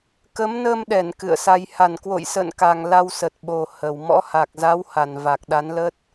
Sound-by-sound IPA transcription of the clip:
kə˨˦m nəː˧mɗɛ˧˩n kɨ̰˧˨ə̯sa˧j ha˧˩nkwo̰˧˨jsə̰ː˧˨nka˨˩ŋ la˧wsə˨˩t̚ ɓo˨˩ hə˨˩w mɔ̰˧˥ha˨˩k̚za˨˦wha˨˩n va˨˩k̚ ɗa˨˦nlə˦˥t̚

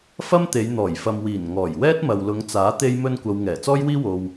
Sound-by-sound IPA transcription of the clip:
fɐ˥mt̪e˨˧j n̪ɔː˨˩jfɐ˨mwiː˨˩nŋɔː˨˩j wɛː˥t̚mɐ˨wlʊ˨˧ŋt͡saː˨˥ t̪e˥jmɵ˥nkʷɐ˧w ŋɛː˨˩ t͡sɔː˥jwiː˥ wo˧w

